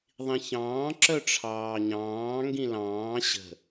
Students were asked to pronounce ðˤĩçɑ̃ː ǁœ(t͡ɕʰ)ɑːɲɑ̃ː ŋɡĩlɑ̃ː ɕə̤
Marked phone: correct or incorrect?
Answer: incorrect